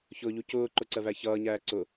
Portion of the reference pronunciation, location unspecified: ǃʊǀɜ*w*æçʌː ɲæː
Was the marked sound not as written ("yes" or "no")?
yes